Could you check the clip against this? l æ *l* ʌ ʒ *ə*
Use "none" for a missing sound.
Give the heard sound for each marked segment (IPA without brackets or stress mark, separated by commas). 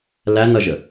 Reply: n, ə